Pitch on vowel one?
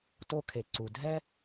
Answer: high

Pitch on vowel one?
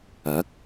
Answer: rising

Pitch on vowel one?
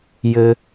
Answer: low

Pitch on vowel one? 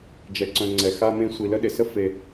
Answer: low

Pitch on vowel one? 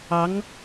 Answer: rising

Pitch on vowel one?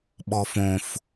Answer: low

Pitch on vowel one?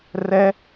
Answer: high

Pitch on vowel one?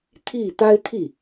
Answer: falling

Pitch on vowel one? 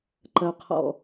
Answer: low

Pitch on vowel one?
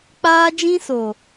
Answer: high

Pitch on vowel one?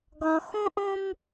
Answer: low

